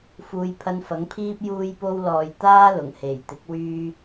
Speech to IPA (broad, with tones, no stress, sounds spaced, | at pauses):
f uː˨ j pʰ ɐ˧ n f ɐ˨˥ ŋ pʰ iː˥ p̚ j uː˧ j p o˧ w l ɔː˨ j t̪ aː˥ l ʊ˨˩ ŋ h e˨˩ j t̪ ɪ˨˥ k̚ w yː˥